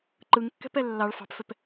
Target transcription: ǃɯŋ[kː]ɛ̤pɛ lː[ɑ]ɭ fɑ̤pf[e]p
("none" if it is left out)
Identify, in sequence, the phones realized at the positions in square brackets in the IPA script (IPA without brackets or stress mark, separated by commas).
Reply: kː, ɑ, ɛ